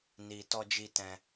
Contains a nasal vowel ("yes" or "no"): yes